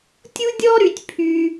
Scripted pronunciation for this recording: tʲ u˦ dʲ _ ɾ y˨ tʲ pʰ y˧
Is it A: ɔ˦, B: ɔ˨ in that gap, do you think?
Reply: A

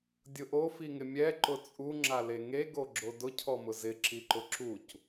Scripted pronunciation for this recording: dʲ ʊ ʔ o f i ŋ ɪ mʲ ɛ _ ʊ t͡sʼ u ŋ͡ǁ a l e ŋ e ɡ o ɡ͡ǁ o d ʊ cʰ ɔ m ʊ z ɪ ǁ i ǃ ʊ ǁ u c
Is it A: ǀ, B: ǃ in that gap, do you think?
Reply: B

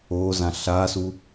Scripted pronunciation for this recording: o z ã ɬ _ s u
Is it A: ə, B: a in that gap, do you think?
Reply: B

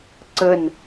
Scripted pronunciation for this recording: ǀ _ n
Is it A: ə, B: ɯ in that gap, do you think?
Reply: A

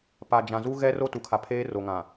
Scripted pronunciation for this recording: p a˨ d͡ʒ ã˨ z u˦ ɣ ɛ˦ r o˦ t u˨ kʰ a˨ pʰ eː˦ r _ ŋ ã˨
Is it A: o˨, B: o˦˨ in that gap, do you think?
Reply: A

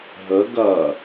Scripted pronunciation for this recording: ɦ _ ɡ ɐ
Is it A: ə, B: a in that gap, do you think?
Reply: A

